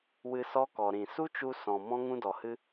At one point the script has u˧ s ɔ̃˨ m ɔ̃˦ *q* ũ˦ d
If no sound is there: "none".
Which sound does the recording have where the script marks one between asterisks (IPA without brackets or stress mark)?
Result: ŋ